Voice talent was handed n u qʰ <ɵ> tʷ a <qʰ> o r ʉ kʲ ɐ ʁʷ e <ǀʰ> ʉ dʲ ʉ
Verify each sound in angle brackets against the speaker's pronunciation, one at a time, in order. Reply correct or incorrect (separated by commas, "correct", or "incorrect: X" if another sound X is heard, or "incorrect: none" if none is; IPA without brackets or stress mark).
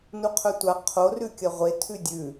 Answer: correct, correct, incorrect: tʰ